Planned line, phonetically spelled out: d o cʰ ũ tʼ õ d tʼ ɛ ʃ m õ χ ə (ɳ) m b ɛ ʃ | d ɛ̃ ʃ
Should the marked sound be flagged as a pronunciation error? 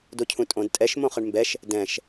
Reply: no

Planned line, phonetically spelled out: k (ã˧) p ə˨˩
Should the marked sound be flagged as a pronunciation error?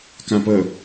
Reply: yes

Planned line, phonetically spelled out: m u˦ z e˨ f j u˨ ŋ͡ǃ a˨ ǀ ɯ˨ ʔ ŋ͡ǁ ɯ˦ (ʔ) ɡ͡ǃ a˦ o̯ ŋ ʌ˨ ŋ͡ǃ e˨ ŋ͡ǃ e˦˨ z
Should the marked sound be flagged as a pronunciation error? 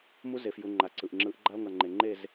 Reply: no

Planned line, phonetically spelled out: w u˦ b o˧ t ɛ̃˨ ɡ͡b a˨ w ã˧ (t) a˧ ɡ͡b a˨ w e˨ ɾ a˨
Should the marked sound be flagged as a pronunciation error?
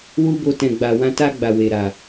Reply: no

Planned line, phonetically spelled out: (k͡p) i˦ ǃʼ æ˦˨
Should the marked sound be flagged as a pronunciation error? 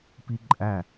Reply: yes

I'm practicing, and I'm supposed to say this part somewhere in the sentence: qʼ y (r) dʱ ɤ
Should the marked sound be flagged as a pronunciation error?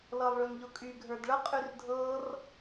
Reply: no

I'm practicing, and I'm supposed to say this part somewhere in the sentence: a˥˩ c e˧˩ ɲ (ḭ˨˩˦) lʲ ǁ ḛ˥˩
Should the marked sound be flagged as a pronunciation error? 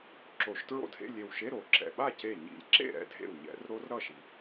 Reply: no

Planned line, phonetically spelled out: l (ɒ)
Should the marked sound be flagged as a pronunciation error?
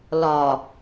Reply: no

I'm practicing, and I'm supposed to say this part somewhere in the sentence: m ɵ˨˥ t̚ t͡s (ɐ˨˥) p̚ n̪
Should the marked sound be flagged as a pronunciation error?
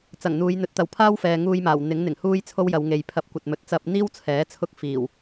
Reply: yes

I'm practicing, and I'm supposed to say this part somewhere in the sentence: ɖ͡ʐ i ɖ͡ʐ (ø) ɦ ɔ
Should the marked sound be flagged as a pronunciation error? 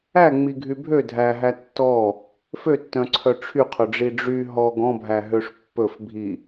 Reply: yes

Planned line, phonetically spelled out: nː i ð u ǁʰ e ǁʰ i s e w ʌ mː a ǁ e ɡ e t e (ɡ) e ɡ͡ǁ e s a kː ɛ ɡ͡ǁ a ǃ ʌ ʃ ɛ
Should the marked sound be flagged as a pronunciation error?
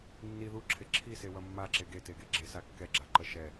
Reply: no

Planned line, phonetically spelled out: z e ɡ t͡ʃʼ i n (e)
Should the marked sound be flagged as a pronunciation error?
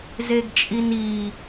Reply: yes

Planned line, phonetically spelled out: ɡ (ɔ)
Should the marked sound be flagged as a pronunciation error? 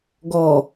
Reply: no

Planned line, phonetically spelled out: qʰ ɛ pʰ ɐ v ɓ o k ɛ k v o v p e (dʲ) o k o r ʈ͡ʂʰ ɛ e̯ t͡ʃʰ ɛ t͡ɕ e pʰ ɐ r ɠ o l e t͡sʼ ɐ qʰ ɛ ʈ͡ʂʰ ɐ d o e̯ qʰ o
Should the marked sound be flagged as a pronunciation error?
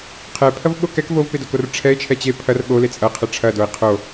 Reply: yes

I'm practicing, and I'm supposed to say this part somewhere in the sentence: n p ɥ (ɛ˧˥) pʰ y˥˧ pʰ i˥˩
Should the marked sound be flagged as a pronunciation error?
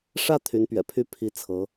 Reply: yes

